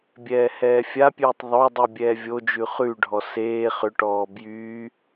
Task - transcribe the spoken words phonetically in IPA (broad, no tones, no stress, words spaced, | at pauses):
bʲɛːhɛːfʲapʲʉːtˤ ðˤodˤu bʲɛːvʲod͡ʒʉ χʉɖʱɔ seː χʏʈɔː bjy